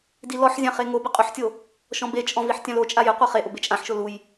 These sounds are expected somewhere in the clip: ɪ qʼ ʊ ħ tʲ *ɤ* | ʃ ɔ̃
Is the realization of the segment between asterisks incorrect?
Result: yes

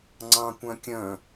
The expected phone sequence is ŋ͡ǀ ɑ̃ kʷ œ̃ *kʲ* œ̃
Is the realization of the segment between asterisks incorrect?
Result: no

